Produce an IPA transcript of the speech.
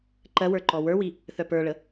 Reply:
ǃ ɜ w ə˞ ǃ ɔ w ə˞ w i | θ œ p ə˞ ɭ ə

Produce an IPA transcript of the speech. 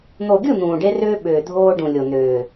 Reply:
n̪ o˨ ɡʲ ɯ˦˨ n̪ ũː˨ ɖ e˦ r ʏː˦ ɓ ʏː˨ dʱ oː˦ ɖ ũ˨ lʲ o˨ n ʏː˨

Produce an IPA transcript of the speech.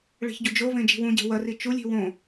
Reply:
ɭ e̤ ç ɟ u d͡ʒ o v ẽ d͡ʒ i̤ w ũ ɟ e̤ w ɐ r i t͡ʃ u lʲ i̤ w õ

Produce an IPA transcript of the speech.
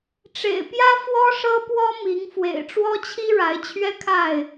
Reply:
ʈ͡ʂ ḛ˨˩ ɪ̯ p j ä˦ f w ɔ˦ ʂ ɤ˦ p w ɔ˦ m i˨˦ ŋ f w ḛ˨˩ ɪ̯ ʈ͡ʂ w ɔ˦ t͡ɕʰ i˦ ɻ a˨˦ ɪ̯ t͡ɕʰ ɥ ɛ˦ kʰ a˥˨ ɪ̯

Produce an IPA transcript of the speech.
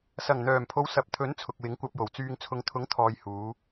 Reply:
s ɐ˨˩ ŋ n̪ œː˨˩ m pʰ o˨˧ w s ɐ˨ p̚ t̪ʰ ɵ˨˥ n t͡sʰ ʊ˨ k̚ w ɪ˨˥ ŋ kʷ ɐ˧ p̚ j o˨˩ w t͡s yː˨ ŋ t͡sʰ ʊ˨ ŋ t̪ʰ ʊ˨˥ ŋ t̪ʰ ɔː˨ j h uː˨˧

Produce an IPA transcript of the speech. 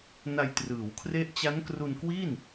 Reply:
n a˧ j t r ɯː˩˦ w kʰ r e˦˥ ʔ t͡ɕ a˦˥ n k r u˧ n k w i˥˩ n

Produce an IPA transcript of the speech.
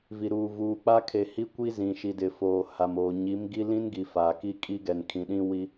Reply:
v i˨ ɾ uː˨ v uː˨ k͡p a˦ kʰ e˨ h i˦ kʷ i˦ z ĩ˨ ʃ i˨ d ɪ˨ f oː˨ h a˨ m oː˨ ɲ i˨˦ m ɡ i˦ l ĩ˦ n ɡ i˨ f a˨ k i˦ kʼ i˦ ɡ ɛ˨ n kʰ ĩ˨ ɗ ĩ˦ w i˦

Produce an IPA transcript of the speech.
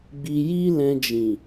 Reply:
ɡ͡b i˧ j i˦ l ɛ̃˧ d͡ʒ ĩ˨

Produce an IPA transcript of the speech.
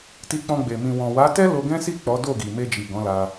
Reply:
t i˧ k͡p ɔ̃˧ ɡ͡b e˨ m ĩ˨ w ɔ̃˨ w a˨˦ t ɛ˦ l o˧ ɡ ɛ̃˦ s i˦˨ k͡p ɔ˨˦ d o˦˨ ɡ i˨ m e˧ d͡ʒ i˨ ɡ ɔ̃˨˦ l a˧

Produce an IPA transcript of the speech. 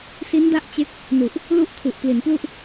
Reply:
s i˦˥ n d a˦˥ ʔ t͡ɕ e˦˥ k̚ | n u˨˩ ʔ | l u˥˩ ʔ kʰ u˨˩ ʔ p l i˩˦ n p l u˥˩ ʔ

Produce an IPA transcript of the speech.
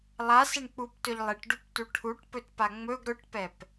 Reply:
lˠ a s e ɳ k͡p u p t ɵ ʎ lˠ e ʈ ɖ u p t u ʈʰ u ʈ p ɵ t p a ŋ͡m ɵ ɡ ɾ ɵ ʈ p ɛ p

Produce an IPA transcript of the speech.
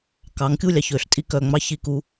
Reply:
k ɑ˨˦ ŋ kʲ u˦˨ lʲ ɑ˨ ç ø˧ ɬ tʼ i˧ k œ˨ ŋ͡m ɑ˦ ç i˦˨ k u˦

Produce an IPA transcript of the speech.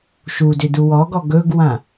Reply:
ʃ u d ʏ d u w ɔ ɡ ɔ ɡ ɵ ɡ w ã

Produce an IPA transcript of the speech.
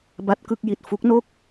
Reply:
b a˦˥ t̚ k ɯ˥˩ k̚ j i˨˩ t̚ f u˦˥ k̚ n o˥˩ k̚

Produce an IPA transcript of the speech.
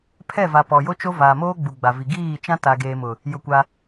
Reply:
pʰ ɛ˦˨ v a˨ p ɔ˨ j o˦ t͡ʃ o˦ v aː˨ m oː˦ ɡ͡b u˨ ɡ͡b a˨ v i˨ ɡ iː˦˨ t͡ʃ ã˦ t a˨ ɡ eː˨ m ʊ˨ | j ʊ˦˨ kʷ a˦

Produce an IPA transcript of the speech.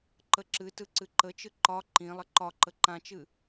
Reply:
ǃ ə ǁ ɨ t ɯ ǀ ɨ ǃ ə t͡ʃ ɯ ǃ ɒ ǃ ĩ lˠ ə ǃ ɒ ǃ ə ǃ ã t͡ʃ ɨ

